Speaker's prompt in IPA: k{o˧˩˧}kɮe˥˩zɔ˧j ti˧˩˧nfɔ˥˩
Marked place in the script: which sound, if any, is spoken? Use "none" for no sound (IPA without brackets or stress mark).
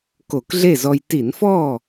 o˧˩˧